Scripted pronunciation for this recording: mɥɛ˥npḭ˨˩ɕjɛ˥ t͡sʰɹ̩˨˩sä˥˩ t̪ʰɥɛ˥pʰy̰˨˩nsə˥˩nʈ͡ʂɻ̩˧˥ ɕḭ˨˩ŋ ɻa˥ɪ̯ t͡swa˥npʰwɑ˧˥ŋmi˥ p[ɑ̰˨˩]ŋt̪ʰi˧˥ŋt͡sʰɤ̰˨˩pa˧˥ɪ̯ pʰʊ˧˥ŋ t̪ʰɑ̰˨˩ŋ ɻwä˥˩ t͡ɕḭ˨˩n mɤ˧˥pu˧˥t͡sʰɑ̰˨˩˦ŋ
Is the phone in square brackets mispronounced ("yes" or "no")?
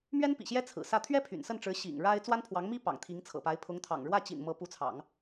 no